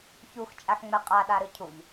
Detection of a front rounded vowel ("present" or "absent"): absent